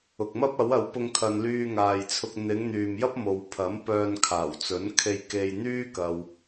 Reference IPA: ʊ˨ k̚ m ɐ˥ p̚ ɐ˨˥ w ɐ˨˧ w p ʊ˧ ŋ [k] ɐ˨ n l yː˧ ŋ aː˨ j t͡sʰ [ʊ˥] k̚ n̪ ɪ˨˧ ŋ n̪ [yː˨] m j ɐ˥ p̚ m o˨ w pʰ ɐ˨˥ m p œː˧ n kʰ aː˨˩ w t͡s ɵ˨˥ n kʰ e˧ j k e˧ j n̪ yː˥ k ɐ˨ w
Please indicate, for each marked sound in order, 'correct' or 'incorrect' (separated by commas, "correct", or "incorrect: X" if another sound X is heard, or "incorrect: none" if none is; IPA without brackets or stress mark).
incorrect: kʰ, incorrect: ʊ˧, correct